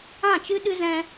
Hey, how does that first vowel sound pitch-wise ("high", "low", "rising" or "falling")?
falling